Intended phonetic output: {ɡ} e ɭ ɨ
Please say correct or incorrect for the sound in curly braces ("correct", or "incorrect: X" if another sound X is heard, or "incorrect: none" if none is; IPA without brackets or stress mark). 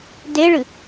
incorrect: d